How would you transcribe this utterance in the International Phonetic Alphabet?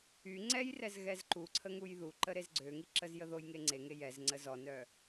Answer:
y ŋ͡ǀ ɛ j r ɛ z ɣ ɛ z ǃ u ǀʰ ə ŋ u j ð u ǃ ə ɾ e z ɡ͡ǀ ø ŋ i ǁ ə z j ə ð o j ŋ e ŋ͡ǀ e ŋ e j ɛ z ŋ͡ǀ ə z ɔ n œ

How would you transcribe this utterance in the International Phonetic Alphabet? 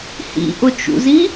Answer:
h ḭ ʔ ʊ t͡ʃ ṵ z i

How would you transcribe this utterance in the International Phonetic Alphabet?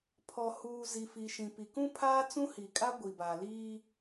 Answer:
pʰ ɔ˨ h uː˨ z i˨ f i˨ ʃ ĩ˨ p i˨ k ũ˦ pʰ aː˦ t͡s ũ˦ h i˨ kʼ a˦ ɡʷ i˨ b a˨ l iː˦

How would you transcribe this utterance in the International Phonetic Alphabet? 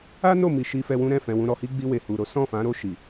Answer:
a˦ n o˦˨ m i˧ ʃ i˧ f ɛ˧ w ũ˦ ɾ ɛ̃˦˨ f ɛ̃˧ w ũ˧ ɾ ɔ˧ h i˦ ɡ͡b i˧ w e˨ h u˨ ɾ o˨˦ s ɔ̃˦˨ f ã˨˦ ɾ o˦˨ ʃ i˨

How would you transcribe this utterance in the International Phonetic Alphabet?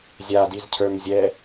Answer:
zʲ a d i z cʰ ə˞ m zʲ ɛ

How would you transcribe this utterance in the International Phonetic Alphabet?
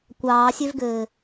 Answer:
kʷ ɑː sʲ ø v ɡ ɘː

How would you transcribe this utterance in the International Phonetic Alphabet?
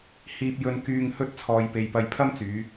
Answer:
h iː˧ p̚ j ɵ˧ n k yː˧ ŋ h ɵ˥ t̚ t͡sʰ ɔː˧ j p e˧ j p ɐ˧ j pʰ ɐ˥ m t͡s yː˨˧

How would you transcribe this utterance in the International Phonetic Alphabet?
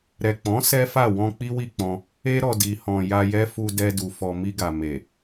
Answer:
ɾ ɛ˨ k͡p ɔ̃˨˦ s ɛ˦ f a˦˨ w ɔ̃˧ k͡p i˦ w i˦˨ k͡p ɔ̃˧ | e˦ ɾ ɔ˧ d i˨ h ɔ̃˨ j a˧ j ɛ˦ f u˧ d ɛ˧ d u˨ f ɔ˨ m i˧ ɡ a˨ m e˨

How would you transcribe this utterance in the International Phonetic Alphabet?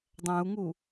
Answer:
dˤ æ̃ u̯ ŋ u

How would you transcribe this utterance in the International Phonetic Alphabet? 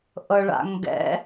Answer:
ʔ ɤ ɭ a̰ ŋ ɡ ɛ̰

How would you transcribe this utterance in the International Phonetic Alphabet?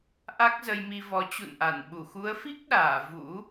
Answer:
ʔ a˦˥ k̚ z ə˧ j m i˧ v ɔ˨˦ t͡ɕ ṵ˧˨ n ʔ a˧˩ n ɓ u˧˩ x u˨˦ ə̯ f i˦˥ k̚ ɗ aː˧˩ v ṵ˧˥

